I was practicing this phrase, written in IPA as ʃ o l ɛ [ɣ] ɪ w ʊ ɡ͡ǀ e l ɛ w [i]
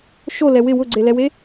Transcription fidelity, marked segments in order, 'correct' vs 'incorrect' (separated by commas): incorrect, incorrect